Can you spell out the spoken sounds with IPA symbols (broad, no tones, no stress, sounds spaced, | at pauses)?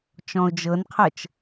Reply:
t͡ʃ ɔ̃ ʊ̯ d͡ʒ ɤ n qʰ ɤ t͡ʃ